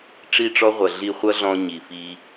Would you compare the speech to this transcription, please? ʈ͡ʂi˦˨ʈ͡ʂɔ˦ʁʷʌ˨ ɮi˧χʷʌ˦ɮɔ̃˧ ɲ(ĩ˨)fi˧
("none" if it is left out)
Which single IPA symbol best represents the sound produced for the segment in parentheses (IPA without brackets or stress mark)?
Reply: i˨